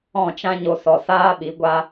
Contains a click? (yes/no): no